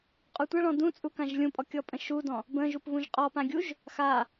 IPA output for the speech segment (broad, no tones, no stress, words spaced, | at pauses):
qʼutʷaɭɔ̃ dũt͡sʼu kãʒlʲũpʼɔ kʲɔpʼə̃ʃudɔ̃ | bə̃ʒup βũʒqʼɔpã ɡʲuʒ | xa